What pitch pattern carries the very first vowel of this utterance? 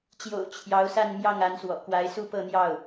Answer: low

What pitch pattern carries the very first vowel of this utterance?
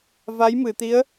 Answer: rising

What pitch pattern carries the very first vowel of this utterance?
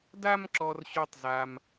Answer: high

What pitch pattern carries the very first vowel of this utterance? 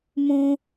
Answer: low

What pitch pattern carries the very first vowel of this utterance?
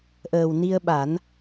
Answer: low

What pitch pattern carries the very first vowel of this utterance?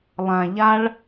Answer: low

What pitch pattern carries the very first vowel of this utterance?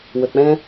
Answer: low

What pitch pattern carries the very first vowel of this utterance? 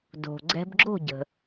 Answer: low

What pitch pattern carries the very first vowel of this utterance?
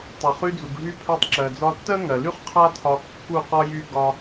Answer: low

